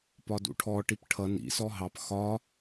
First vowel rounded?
yes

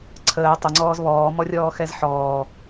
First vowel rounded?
no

